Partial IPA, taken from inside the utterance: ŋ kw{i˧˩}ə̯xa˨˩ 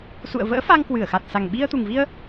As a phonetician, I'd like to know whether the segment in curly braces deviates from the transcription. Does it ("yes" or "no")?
yes